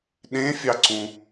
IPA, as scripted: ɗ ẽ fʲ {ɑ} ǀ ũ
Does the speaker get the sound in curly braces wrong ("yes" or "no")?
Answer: no